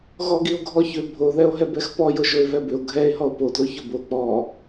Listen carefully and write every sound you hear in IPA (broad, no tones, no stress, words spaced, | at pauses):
ɣɔɡio̯ɡʱɔçʏ bʱoðɛo̯ɦɛb ɛxpɔjʊ ʒoe̯vɛbʏo̯ ɡʱɛe̯ ɦɔo̯podlo çʊbo k͡pɔ